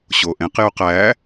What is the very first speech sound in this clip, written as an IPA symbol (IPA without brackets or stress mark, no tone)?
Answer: ɕ